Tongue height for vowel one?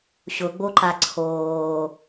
high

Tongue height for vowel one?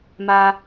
low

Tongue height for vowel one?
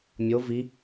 mid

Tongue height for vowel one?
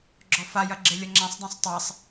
mid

